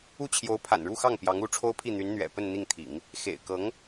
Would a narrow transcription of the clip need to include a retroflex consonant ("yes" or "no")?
yes